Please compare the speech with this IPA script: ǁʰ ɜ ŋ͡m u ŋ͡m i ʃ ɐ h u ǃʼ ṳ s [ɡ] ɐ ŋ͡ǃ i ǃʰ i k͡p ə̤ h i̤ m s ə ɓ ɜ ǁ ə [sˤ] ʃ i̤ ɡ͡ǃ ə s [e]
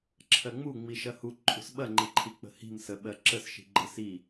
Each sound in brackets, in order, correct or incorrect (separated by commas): incorrect, incorrect, incorrect